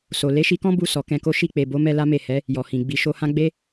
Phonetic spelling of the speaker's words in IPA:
s o˨ l e˨˦ ʃ i˧ k ɔ̃˦ b u˦˨ s ɔ˨ k ɛ̃˧ k o˦ ʃ i˦˨ k͡p e˨ b o˨˦ m ɛ˧ l a˦ m e˦˨ h ɛ˨˦ | j ɔ˨ h ĩ˨ ɡ͡b i˨ ʃ o˧ h ã˦ ɡ͡b e˦

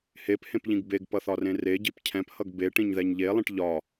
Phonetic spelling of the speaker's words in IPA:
h e p h ẽ p ʎ ĩ ɡ b e ɡ p ʌ θ ɒ r ẽ r e ɟ i p cʰ ɛ̃ p h ʌ ɡ b e ʈ ĩ ɲ ð ɛ ɲ ʎ e lˠ ĩ ʈ ʎ ɒ

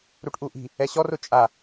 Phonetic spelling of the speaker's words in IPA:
ɾ u ʈ ʔ u ʔ i̤ | ɛ ɕ ɔ r ʊ t͡ʃʼ a

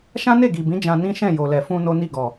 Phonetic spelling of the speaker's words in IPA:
ʃ ã˦ n e˦˨ ɡ i˨ b ĩ˨˦ d͡ʒ ã˧ n ĩ˦ ʃ ɛ̃˦˨ j o˨ l ɛ˨ f ũ˧ n o˦ n i˦˨ ɡ ɔ˨

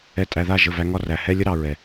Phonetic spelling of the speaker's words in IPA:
ɛ˨ tʼ æ˨ ð a˦˨ ʒ ə˦˨ v æ˦ ŋ ɒ˦ r æ˨ h ɛ˦ lʲ ə˦ ɾ ɑ˨ ɹ ɛ˨

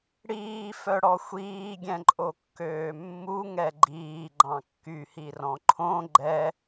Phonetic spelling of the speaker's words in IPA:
ɽ iː f œ ɽ ɔ xʷ iː ɡʲ ɛ̃ ǃʼ o kː øː mː u ŋ ɛ ɡ͡ǃ iː ɡ͡ǃ ɑ̃ kː y h i r ɔ̃ ǃʰ õ ɡ͡ǃ ɛ

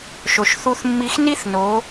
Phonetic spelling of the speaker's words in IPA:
ʃ o˩ ʃ θ u˧ θ mː i˧ x n i˥ θ n o˩˧

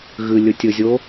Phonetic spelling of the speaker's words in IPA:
ɣ ɨ lʲ ɵ tʲ ɵ zʲ o

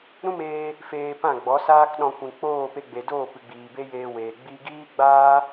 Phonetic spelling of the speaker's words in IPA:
ɾ ũ˦ m eː˧ | f eː˧ p ã˦˨ ɡ͡b ɔ˨˦ s aː˦ k ɗ ɔ̃˧ kʷ ĩ˨ k͡p oː˦˨ p e˧ ɡ͡b e˨ d oː˦˨ p ɨ˨ ɡ͡b iː˨ b e˦ j eː˧ w eː˨ ɡ͡b i˧ ɡ iː˦ ɡ͡b aː˦

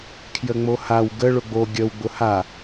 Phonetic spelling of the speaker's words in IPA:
kʰ j ə ŋ͡m o h a w ɡ ə ɭ ʊ ɡ͡b o ɡʲ ə w ɡ͡b ʊ h a

